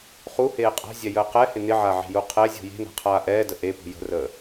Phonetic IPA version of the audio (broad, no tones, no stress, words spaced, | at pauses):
χuheː qʼa̤zʲɛjəː qɛhɪ nɪʕaʕe̤ju qʰɛzʲṳ je̤na̤qʰaː ʔɛːdə ʔepṳ jə̤rəː